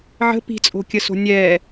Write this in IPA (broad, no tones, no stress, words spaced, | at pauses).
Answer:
ʕə̤ pi̤t͡sʼo̤kʲəso̤ nʲɛ